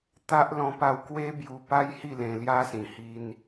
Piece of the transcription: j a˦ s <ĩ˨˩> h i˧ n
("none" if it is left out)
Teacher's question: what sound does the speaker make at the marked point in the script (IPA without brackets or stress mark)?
ĩ˨˩